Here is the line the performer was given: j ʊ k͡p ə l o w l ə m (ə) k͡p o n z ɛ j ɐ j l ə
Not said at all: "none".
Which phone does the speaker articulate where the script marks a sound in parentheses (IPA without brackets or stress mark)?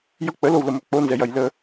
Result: ø